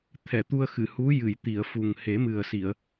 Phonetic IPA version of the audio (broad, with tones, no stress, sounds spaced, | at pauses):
t̪ʰ ɛ˨˩˨ t̪ u˧ ə̯ x ɨ˨˩˨ h u˧˥ j ɨ˨˩˨ j t̪ i˨˩˨ ə̯ f u˨˩ ŋ h e˨˩˦ m ɨ˨˩ ə̯ s i˨˩˨ ə̯